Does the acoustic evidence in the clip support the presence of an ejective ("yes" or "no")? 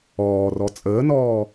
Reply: yes